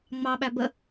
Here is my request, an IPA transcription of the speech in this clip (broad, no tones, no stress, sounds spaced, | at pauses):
ŋ͡m ɑ ɓ æ b ə